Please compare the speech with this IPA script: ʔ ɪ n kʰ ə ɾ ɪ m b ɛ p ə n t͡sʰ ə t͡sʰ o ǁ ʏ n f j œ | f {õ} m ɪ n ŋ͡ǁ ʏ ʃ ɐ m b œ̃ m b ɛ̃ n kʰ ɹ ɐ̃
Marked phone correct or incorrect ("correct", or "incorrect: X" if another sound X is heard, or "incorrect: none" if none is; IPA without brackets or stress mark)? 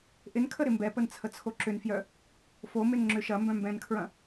incorrect: o